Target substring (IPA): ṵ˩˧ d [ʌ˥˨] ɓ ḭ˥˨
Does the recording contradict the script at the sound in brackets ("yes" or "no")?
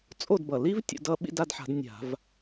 no